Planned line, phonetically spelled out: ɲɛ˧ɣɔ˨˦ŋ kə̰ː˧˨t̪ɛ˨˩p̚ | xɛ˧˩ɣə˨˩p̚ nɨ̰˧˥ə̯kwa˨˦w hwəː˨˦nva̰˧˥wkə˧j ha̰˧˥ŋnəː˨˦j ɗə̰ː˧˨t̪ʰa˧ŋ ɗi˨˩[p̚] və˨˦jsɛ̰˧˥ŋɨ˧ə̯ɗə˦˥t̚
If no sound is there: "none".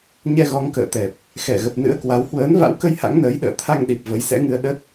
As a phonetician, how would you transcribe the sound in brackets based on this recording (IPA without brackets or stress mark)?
p̚